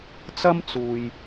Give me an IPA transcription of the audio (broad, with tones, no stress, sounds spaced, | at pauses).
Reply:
t͡s ɐ˥ m t͡s uː˨ j